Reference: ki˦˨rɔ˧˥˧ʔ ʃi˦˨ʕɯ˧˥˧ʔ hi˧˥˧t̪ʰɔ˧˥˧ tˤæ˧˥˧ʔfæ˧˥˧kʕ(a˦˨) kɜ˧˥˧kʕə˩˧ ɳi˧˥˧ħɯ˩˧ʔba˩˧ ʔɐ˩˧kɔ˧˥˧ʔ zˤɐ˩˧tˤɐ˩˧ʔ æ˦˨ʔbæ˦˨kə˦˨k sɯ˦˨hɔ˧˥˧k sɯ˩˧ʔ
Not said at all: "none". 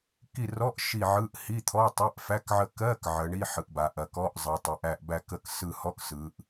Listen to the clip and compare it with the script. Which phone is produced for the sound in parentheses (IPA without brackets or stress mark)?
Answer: ə˦˨